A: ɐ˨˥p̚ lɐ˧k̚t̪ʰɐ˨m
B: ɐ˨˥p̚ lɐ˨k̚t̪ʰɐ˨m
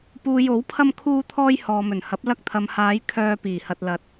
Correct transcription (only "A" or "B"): A